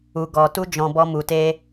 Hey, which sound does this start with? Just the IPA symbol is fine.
u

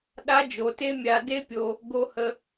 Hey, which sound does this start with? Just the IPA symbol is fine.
ɗ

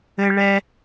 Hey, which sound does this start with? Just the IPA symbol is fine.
ɘ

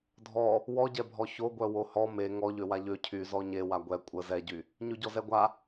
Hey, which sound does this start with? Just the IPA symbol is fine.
dʱ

